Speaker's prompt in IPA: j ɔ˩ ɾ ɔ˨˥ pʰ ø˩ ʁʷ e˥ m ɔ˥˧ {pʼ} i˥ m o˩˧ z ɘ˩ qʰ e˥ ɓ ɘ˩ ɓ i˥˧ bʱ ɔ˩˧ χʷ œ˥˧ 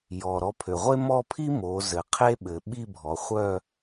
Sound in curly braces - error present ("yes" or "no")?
yes